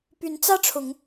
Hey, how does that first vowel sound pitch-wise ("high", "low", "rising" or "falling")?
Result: rising